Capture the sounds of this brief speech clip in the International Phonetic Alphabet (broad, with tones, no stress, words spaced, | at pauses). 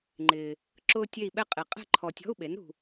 ŋ͡ǃɪː˨ | ǁʊː˥tʲe˥˧i̯ɓɛ˥qʼe˨ qʼɛ̤˥˧ǃʰɔ˨tʲɔ̤˧˥˧u̯ɓe˩˥n ɾṳ˨